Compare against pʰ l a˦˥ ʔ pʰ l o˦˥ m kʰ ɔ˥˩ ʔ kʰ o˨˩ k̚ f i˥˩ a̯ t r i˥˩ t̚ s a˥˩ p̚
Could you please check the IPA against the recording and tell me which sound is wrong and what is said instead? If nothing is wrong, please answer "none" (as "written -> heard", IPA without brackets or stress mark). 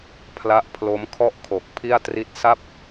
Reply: f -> pʰ